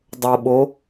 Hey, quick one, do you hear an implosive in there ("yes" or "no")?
yes